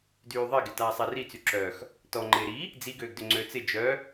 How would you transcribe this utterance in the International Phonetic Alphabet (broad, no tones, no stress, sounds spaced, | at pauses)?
d yː ðˤ e ɡ ɪ t aː sˤ ɛ r i t͡s y ǁ œ x | t ɔ ŋ͡ǃ ɪ ɾ i | d͡z i ɡ øː ɡ d ʏ ŋ͡ǀ ø t͡s ɪ d͡ʒ œ